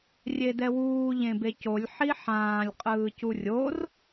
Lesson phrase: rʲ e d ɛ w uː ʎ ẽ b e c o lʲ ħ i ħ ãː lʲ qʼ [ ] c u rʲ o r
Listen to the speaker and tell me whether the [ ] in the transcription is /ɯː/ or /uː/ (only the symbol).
ɯː